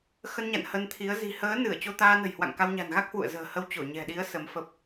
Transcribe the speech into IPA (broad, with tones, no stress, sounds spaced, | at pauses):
x ə˧ n ɲ a̰˧˨ n h ə˧ n t̪ʰ i˨˦ ə̯ z i̤˨˩ h əː˨˦ n ɨ˧˩ ə̯ t͡ɕ o˧ t̪ aː˧ n ə̤˨˩ j h w a̰˧˨ ŋ k a˧ w ɲ a̤˨˩ n ɣ a˦˥ k̚ h w ṵ˧˨ ə̯ z ə̤ː˨˩ h ə˧ w t͡ɕ o˧˩ ɲ ɛ̤˨˩ ɗ i˨˦ ə̯ s ə˨˦ m f ə˦˥ p̚